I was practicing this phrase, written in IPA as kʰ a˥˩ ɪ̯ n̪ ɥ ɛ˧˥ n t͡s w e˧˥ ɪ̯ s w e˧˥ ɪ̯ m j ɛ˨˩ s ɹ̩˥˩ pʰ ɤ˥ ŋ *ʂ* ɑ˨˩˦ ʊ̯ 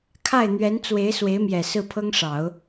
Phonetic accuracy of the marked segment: correct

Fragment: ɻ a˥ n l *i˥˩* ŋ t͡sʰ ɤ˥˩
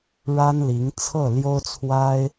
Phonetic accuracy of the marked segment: incorrect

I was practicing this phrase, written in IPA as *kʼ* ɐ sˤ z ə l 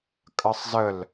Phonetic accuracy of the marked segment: correct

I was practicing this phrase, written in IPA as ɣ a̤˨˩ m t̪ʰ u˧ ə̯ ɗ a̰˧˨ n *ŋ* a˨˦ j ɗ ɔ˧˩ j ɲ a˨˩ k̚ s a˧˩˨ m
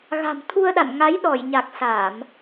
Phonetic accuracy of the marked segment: correct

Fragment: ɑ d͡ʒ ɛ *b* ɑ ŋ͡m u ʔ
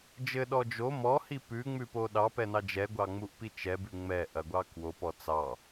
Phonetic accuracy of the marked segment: incorrect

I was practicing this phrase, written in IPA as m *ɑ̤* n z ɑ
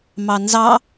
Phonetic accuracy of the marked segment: incorrect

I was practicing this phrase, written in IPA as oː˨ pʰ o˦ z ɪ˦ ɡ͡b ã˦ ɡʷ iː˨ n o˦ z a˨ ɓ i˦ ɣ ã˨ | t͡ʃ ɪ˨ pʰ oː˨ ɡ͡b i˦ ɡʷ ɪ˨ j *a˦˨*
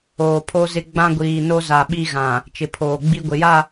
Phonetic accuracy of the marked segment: correct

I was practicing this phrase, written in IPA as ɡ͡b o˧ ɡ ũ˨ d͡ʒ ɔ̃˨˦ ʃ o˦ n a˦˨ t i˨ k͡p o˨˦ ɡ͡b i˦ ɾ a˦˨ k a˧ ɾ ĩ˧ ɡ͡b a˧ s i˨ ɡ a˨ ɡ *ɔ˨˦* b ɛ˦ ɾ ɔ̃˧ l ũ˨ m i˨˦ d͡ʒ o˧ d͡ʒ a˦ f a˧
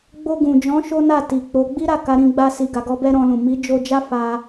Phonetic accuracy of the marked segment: incorrect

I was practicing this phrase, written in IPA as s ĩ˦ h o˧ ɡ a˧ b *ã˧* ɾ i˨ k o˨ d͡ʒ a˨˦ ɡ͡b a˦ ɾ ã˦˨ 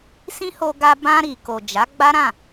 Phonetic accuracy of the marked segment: correct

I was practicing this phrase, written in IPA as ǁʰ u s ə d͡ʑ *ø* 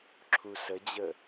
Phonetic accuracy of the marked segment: incorrect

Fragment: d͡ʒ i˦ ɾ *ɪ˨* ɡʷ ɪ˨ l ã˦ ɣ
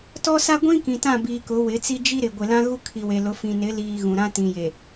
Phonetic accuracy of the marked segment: correct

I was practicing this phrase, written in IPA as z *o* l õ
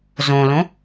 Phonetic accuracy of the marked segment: incorrect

